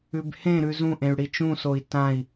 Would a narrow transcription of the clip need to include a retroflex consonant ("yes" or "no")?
yes